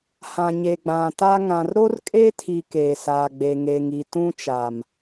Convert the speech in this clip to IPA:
h ã˨ ɲ e˨ ɡ͡b ã˨ t a˦ ŋ ã˨ r ɾ o˦ r kʼ e˦ tʰ i˨ k eː˨ s aː˨ ɡ͡b e˨ ŋ e˨ ŋ i˨ t ũ˦ t͡ʃ a˨ m

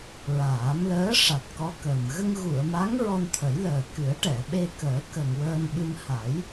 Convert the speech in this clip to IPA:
ɹ aː˨˩˦ m l əː˧˥ ʂ a˨˩ t̚ k ɔ˧˥ k əː˨˩ m ɣ ə˧ ŋ ɣ u˨˩˨ ə̯ m a˧˥ ŋ ɹ ɔ˧ n t̪ʰ ə˨˩˦ j l əː˨˩ k ɨ˨˩˦ ə̯ ʈ ɛ˨˩˨ ɓ e˧ k əː˨˩˦ k ə˨˩ ŋ w əː˧ n ɓ ɨ˧ m h a˨˩˦ j

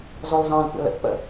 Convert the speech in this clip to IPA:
z ɔ l z ɑ̃ l kʷ ɑ̰ l ə̰ θ p ə̰

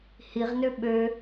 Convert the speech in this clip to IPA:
h i ʁ n ø ɓ ø

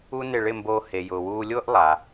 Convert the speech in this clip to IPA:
u˥ n ɪ˥˩ ɭ ɪ˥˩ m b oː˧ h e˩ j ʊː˩ w uː˧ lʲ ʊː˥ ʔ lˠ a˩

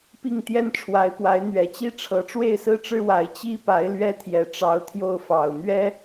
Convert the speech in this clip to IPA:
p i˥˩ ŋ t̪ j ɛ˥ n ʈ͡ʂʰ w a˧˥ ɪ̯ p w a˧˥ ɪ̯ n̪ ɥ ɛ˨˩ t͡ɕ i˥ ʈ͡ʂʰ ɤ˧˥ ʈ͡ʂ w e˥˩ ɪ̯ s ɹ̩˥ ʈ͡ʂ ɻ̩˥ w a˧˥ ɪ̯ t͡ɕ i˥ p a˧˥ ɪ̯ l ɥ ɛ˥ t̪ʰ j ɛ˨˩ ʈ͡ʂ ɑ˧˥ ʊ̯ t̪ʰ j o˥˩ ʊ̯ f ɑ˨˩ ʊ̯ n̪ ɥ ɛ˥

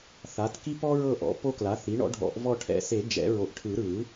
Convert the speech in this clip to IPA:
θ a˩˥ t k i˦ p ɔ˦ ɹ ɤ˦˨ ʔ ɔ̰˩˥ p o˦ k l a˩˥ θ i˩˥ ɳ ɔ̰˩˥ ɖʱ ɔ̰˨˩˦ ʔ v ɔ˦˨ ʈʰ ɛ̰˨ s e˨˩˦ d͡ʒ ɛ̰˨˩˦ ɹ o˨ ʔ ʈʰ ɯ˨˩˦ ɾ ɯ˨˩˦

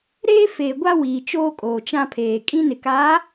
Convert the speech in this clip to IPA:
ɾ eː˦ f eː˨ ɡʷ a˦ w iː˨ t͡ʃ oː˦ kʼ oː˨ t͡ʃ ã˦ pʰ eː˨ kʼ ĩ˦ n ɪ˨ k aː˨˦

